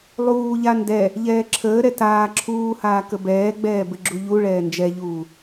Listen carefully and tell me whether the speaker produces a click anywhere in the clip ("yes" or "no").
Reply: yes